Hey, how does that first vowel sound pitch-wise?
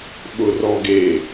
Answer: low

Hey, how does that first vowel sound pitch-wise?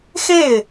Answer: falling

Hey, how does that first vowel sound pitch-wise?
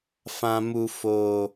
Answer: low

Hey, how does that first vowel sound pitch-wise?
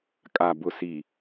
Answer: low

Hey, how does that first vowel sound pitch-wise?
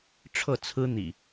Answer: falling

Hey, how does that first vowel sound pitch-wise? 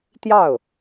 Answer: falling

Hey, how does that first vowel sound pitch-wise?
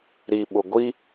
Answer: low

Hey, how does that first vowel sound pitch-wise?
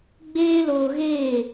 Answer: high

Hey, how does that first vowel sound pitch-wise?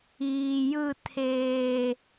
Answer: low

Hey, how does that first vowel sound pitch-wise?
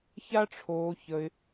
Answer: high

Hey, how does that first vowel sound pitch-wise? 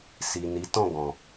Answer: low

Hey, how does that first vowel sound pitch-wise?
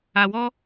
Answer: low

